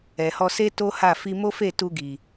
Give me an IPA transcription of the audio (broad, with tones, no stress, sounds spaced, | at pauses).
ɛ˨ h ɔ˧ s e˦ t o˦ h a˦˨ f i˧ m o˦ f e˦˨ t u˧ ɡ i˨